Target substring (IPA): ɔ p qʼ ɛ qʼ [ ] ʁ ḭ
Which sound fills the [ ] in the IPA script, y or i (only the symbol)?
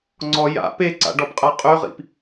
y